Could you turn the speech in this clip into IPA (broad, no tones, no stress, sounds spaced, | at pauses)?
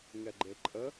ŋ ɛ ɡ͡ǃ e ǃʼ ə